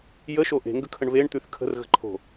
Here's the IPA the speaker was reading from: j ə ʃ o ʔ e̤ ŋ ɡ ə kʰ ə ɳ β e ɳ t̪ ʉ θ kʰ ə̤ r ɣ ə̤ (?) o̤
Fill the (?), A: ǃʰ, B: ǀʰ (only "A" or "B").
A